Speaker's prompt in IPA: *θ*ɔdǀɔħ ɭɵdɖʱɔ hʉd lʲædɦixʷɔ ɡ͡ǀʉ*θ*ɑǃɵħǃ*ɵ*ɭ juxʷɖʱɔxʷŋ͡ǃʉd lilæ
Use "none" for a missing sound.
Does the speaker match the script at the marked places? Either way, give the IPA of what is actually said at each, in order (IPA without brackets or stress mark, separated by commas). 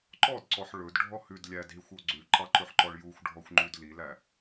ǃ, ǃ, ɔ